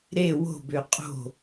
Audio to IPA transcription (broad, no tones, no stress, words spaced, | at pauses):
ɾe wo̤bø qʼo̤